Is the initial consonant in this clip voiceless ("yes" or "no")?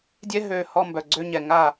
no